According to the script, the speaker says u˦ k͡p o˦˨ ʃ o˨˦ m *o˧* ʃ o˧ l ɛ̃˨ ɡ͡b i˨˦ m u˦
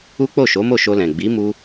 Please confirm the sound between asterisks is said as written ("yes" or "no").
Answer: no